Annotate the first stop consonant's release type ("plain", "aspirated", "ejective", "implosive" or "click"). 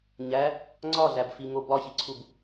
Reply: click